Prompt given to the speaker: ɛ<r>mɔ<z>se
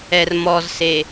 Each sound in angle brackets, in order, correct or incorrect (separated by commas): correct, correct